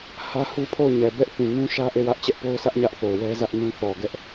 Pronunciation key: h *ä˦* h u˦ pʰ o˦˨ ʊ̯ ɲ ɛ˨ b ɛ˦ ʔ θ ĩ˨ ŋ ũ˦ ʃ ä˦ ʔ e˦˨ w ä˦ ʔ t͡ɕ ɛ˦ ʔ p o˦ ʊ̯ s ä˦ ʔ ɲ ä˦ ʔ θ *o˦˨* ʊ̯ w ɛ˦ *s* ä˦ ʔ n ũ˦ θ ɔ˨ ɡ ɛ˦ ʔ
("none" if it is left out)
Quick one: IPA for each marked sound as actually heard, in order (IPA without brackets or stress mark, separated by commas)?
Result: ä˦, o˨, z